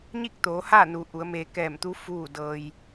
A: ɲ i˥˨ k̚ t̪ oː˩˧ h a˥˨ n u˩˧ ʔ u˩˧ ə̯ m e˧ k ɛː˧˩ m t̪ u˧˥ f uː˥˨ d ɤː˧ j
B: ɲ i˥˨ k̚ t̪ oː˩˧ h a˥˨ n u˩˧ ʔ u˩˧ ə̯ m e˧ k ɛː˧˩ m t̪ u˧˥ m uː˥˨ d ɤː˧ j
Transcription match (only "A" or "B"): A